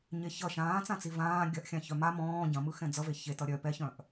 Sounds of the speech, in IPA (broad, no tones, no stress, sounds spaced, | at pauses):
ɲ e ç ʌ ʃ ãː t͡s ã t͡s i v ãː ɡʲ ɐ ʔ xʲ ã ç œ m a m ɔ̃ː ɟ ɐ̃ m ɯ x ɛ̃ d͡z ʌ v e ç e t ʌ ɾʲ œ p ɛ ç œ̃ ʔ